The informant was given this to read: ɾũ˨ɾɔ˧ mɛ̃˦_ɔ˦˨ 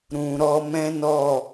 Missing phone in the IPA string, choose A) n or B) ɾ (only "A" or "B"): A